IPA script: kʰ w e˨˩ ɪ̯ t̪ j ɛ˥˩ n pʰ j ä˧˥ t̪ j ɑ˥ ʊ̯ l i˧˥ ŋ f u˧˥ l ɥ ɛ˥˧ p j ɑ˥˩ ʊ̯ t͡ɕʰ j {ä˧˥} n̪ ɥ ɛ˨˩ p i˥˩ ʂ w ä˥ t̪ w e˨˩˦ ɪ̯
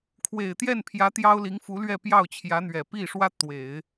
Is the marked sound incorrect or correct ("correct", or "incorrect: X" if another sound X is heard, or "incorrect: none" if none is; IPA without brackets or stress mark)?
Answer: correct